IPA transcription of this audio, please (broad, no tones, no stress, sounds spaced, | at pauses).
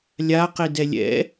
lʲ a q i d ɛ lʲ ɛ̰